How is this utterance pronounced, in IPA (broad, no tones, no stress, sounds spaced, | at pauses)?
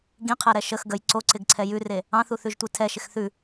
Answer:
ɡ ĩ qʰ ɛ ɾ ɛ ʃ ə x ɡ ə j ǀ o ǀ ɪ ɡ ǀʰ ɛ j ʉ r e | ɑ̃ θ u θ ʉ ʒ tʷ i tʰ ɛ ʃ ɪ x θ ʉ